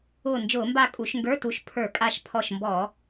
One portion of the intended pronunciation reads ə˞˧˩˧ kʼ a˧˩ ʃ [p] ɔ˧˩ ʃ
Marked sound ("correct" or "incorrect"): incorrect